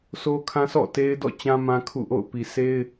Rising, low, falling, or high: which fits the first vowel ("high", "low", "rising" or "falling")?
high